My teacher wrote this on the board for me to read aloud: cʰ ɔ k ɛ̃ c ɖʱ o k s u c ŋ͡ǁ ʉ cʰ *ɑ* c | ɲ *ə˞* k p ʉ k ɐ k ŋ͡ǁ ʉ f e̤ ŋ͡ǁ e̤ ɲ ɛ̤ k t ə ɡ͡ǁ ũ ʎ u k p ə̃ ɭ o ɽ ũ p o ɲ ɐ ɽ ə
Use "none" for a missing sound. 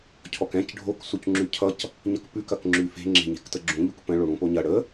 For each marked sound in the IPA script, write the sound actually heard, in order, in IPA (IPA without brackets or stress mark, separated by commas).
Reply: ʌ, ʌ